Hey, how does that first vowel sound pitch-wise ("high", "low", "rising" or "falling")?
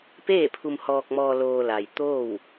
falling